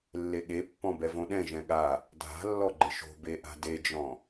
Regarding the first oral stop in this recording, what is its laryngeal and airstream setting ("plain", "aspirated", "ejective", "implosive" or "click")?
implosive